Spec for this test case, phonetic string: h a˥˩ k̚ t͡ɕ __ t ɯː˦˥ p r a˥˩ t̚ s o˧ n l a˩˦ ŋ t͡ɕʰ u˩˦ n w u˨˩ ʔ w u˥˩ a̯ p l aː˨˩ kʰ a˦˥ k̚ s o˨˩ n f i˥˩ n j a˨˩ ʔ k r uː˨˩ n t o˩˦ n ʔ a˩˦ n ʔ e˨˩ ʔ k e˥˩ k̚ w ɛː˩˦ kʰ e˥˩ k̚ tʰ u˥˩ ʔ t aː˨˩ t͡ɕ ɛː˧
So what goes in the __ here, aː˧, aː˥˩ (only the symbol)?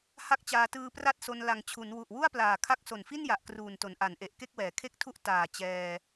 aː˧